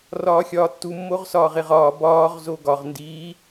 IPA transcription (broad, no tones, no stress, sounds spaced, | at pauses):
r ɒː xʲ ɒː tː u mː o ʁ s ɒː ʁ e ʁ ɒː b ɒː ʁ z o ɡ ɒ ʁ n d iː